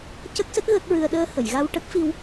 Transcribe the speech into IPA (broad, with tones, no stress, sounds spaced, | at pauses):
c ə˦˥ k̚ s ə˦˥ k̚ ɣ ə˦˥ k̚ ɹ ɨ˧ ə̯ ɗ əː˧ h ə˨˩˨ j ɣ a˧ w ʈ ə˦˥ k̚ f i˧ w